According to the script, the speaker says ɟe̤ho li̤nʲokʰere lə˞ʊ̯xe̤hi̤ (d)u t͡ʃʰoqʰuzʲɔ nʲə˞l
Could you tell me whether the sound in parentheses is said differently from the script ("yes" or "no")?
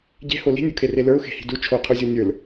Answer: no